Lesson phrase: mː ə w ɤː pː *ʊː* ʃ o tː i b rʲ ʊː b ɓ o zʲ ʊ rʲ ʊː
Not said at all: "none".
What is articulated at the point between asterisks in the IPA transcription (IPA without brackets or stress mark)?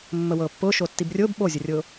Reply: ʊː